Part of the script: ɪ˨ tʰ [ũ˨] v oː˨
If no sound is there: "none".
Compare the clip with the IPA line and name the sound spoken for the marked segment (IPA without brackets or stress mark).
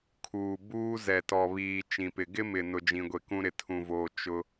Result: ũ˨